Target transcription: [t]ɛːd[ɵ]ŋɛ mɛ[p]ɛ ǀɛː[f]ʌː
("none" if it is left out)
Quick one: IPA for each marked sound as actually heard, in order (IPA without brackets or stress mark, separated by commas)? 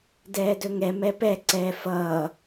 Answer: d, ɵ, p, f